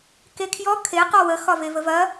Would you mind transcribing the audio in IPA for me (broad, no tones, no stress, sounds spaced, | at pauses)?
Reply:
k e kʰ j ɔ kʰ e q ɔ w ə x ɒ v e v ə v ɐ